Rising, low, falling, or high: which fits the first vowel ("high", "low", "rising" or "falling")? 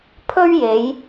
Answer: high